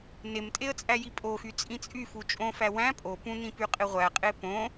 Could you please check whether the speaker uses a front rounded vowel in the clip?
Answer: yes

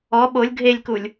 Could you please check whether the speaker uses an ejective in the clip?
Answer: no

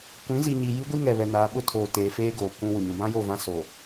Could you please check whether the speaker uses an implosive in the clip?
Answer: yes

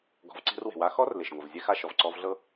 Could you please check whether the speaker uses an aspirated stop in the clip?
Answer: no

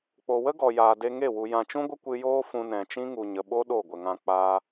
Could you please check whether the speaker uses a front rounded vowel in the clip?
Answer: no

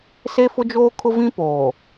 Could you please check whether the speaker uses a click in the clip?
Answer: no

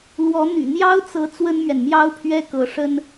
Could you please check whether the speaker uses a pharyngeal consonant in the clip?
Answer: no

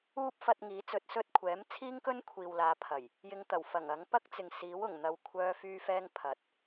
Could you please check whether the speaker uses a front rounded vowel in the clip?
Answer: yes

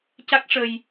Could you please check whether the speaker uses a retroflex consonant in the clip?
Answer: yes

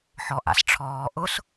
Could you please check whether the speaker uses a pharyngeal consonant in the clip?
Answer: yes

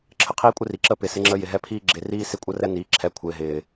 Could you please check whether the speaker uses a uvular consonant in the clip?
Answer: yes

